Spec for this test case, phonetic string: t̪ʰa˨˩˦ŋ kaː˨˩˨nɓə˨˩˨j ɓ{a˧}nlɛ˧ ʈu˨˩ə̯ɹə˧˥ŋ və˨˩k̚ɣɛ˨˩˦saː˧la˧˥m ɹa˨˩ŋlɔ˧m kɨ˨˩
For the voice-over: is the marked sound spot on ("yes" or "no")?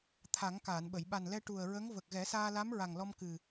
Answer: no